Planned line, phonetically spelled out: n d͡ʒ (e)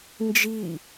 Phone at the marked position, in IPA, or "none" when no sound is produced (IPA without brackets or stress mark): i